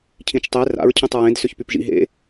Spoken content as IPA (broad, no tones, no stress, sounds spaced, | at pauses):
cʰ ĩ t͡ʃ tˤ e r a̰ ɹ cʰ ẽ tˤ ɹ ẽ d s ʏ ç p y p ʒ ḭ ɦ ḛ